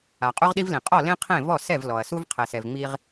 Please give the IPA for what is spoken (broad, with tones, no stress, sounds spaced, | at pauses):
a˩ qʼ u˦ ʁ ɗ i˦ v l ĩ˩ qʼ ɔ˥˩ l ẽ˦ qʰ ẽ˥˩ v ɔ˥˩ s ɛ˥˩ v l ɔ˩ ɐ̯ s u˦ v qʰ ɛ˩ s ɛ˩ v ŋ͡m i˦ ʁ